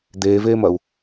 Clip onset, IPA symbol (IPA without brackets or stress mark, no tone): d̪